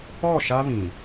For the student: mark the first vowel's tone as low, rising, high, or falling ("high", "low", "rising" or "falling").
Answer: falling